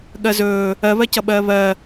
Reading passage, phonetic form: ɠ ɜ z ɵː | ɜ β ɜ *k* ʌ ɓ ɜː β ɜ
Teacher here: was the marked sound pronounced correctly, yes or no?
no